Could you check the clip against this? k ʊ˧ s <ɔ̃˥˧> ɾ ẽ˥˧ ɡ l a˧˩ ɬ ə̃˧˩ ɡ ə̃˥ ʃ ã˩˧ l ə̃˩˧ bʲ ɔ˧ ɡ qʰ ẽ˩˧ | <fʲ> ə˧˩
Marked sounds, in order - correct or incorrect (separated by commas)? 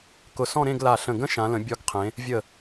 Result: correct, incorrect